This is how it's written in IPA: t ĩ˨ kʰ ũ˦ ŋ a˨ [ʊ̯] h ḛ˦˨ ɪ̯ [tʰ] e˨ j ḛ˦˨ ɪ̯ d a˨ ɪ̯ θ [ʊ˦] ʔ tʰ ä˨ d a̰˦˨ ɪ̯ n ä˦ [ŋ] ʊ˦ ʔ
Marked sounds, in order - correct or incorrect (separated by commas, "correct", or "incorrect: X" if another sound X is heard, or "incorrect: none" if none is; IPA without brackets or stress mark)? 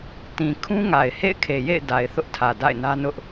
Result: incorrect: ɪ̯, incorrect: kʰ, correct, incorrect: n